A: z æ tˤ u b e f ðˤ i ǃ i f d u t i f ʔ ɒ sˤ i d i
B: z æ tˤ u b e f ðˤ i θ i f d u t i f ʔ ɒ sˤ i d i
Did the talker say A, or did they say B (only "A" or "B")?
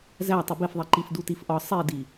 A